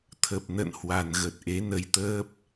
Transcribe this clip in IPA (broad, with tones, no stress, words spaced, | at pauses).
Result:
t̪ʰə˨˩p̚nə̰˧˨nhwa˨˩nɣə˨˩t̚ ʔe˨˦nə˧jt̪əː˦˥p̚